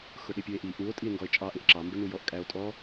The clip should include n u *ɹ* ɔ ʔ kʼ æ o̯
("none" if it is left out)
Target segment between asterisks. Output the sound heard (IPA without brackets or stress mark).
j